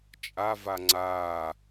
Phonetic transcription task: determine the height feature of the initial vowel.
low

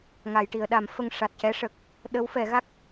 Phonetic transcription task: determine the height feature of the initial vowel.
low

